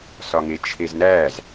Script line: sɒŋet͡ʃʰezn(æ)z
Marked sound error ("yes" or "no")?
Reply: no